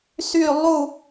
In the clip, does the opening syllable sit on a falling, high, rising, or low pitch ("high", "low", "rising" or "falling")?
falling